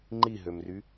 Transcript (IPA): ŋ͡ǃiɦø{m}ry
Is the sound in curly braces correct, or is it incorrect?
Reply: correct